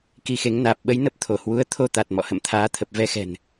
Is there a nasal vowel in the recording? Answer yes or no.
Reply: no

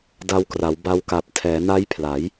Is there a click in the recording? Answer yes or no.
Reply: no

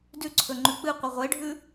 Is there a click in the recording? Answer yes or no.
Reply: yes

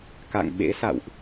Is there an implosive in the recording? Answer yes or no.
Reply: yes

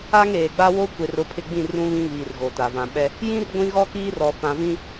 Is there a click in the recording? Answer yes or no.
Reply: no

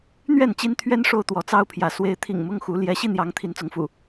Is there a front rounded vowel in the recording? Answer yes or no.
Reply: no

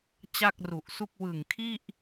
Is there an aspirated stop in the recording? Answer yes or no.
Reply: yes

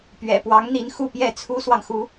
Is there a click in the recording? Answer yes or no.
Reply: no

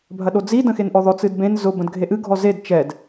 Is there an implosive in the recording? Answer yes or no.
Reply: yes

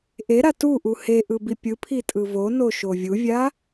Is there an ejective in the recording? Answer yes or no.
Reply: yes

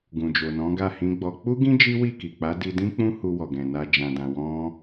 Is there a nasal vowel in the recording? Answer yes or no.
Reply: yes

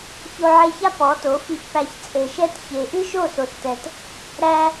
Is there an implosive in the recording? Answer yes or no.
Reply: no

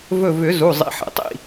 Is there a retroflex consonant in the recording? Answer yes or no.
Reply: no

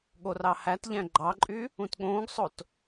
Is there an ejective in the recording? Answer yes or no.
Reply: yes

